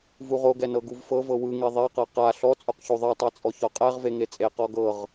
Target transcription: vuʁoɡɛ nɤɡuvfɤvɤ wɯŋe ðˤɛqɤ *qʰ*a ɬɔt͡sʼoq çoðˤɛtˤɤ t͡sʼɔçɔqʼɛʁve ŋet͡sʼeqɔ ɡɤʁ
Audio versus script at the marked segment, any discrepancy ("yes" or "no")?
yes